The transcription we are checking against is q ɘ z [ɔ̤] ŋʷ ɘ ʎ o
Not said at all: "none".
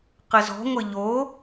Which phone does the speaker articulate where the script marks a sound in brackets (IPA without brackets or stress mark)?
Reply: ɔ̤